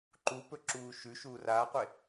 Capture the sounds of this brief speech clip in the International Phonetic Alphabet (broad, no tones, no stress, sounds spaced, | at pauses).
ǃ u p ɵ ǁ uː ʃ ʉ ʃ uː r aː qʷ e